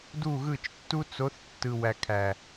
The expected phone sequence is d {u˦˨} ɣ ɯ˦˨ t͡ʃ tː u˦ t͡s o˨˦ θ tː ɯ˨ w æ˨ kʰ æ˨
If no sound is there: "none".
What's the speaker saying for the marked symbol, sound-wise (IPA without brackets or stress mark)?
u˦˨